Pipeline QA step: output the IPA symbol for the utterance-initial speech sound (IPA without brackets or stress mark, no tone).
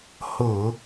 h